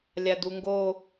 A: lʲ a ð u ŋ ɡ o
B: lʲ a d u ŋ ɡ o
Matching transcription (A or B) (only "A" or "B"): B